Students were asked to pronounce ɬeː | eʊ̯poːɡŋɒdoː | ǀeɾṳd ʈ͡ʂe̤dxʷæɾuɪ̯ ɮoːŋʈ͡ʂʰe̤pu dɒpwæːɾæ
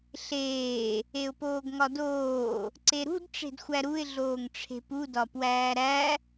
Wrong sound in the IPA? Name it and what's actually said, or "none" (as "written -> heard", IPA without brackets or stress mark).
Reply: none